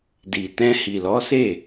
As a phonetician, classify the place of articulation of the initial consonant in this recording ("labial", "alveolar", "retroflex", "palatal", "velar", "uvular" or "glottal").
alveolar